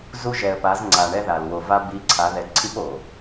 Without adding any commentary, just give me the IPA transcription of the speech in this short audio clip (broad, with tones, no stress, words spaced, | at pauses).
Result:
zu˦ ʒɛ˨ə̯pa˨˦zŋ͡ǀa˨ ɳɛ˦ða˨l wo˨va˦ bi˨˦ ǀʰa˨˦ ðɛ˨ǀʰi˦p o˨